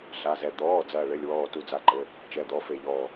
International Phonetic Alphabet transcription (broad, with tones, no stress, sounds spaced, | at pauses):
ɬ a˩˧˩ z ɛ˧˩ d̪ ɔː˩˧˩ d͡z ɐː˧˩ ɭ ɘ˩˧˩ lʲ w ɔː˧˩ t u˧˩ d͡z a˧˩ ǃ ɘ˩˧˩ | t͡ʃ ɛ˩˧˩ d̪ ɔ˩˧˩ f e˧˩ ʎ ɔː˧˩